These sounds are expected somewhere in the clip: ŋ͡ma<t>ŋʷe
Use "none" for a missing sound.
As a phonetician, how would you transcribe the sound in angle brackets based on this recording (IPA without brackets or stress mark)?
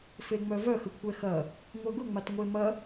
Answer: t